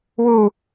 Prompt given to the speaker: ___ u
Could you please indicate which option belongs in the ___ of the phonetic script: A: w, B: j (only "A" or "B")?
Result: A